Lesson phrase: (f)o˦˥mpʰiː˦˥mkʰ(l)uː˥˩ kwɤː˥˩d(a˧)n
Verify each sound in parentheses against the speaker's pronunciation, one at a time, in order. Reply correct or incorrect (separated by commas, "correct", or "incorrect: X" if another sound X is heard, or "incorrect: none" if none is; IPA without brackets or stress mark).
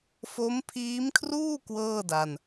correct, incorrect: r, correct